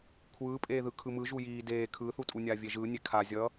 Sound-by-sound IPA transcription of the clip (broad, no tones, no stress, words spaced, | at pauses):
kʷʰɯːpʼeːðɯ kʰɯmɯ ʒujiː deː kʰɯːθutʼunʲaː vʲeʒɯː nʲekʰa zʲʌ